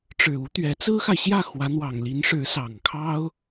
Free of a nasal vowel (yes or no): yes